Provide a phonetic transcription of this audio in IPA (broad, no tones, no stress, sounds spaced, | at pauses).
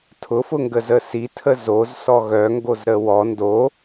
tʰ ʊ f ʊ ŋ ɡ ə z ə s i tʰ ə z o z s ɔ ɣ œ ŋ ɡ o z ɾ ə w ɔ n d o